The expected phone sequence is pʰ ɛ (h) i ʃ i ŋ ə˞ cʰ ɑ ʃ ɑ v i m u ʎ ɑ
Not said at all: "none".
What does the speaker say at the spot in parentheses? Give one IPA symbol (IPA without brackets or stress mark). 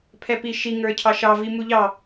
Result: p